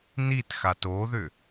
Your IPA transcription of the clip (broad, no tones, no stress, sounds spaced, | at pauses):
n i t x a t o ð ʏ